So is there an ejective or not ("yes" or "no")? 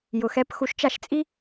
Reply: yes